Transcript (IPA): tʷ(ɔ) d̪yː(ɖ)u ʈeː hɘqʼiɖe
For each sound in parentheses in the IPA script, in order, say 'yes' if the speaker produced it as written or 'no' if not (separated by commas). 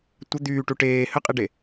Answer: no, no